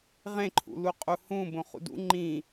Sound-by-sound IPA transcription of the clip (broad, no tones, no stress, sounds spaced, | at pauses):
ʁ ẽ ǃʰ ṵ l u qʼ u h ũ b õ χ ṵ d ṵ ŋ͡ǃ ĩ